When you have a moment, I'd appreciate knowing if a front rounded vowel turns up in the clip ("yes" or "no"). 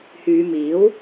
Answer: yes